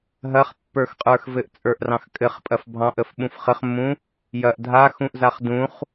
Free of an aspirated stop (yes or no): yes